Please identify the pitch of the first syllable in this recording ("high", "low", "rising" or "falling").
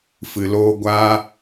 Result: low